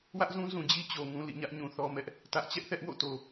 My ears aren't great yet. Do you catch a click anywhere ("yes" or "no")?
no